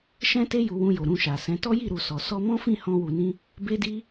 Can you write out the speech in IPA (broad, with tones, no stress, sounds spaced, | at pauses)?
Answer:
ʃ ɛ̃˦ t e˦ j u˧ w ũ˧ j o˨ ɾ ũ˧ ʃ a˨ s ɛ̃˨˦ t ɔ˦ j i˦˨ ɾ u˨ s ɔ˨ s ɔ˧ m ɔ̃˦ f ĩ˦˨ h ɔ̃˧ w u˨ n ĩ˧ | b e˦ d i˦